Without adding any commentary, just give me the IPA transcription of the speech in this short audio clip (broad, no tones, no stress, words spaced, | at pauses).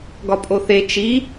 ɡɒpʼoθe t͡ʃi